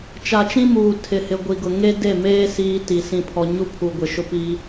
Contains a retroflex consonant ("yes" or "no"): no